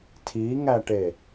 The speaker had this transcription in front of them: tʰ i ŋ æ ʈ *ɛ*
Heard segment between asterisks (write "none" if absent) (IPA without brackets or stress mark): e